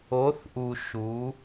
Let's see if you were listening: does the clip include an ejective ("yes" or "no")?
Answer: no